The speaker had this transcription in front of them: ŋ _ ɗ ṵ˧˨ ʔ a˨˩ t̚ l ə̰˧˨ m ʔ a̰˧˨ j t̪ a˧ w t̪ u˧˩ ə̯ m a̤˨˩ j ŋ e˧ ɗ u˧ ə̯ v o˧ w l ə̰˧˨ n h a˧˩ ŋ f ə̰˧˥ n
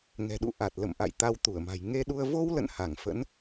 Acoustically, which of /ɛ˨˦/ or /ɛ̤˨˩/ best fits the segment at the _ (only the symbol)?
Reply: ɛ̤˨˩